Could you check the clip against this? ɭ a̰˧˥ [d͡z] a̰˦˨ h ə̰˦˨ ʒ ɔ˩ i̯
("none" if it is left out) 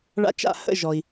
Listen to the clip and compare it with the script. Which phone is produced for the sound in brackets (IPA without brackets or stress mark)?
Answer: t͡ʃ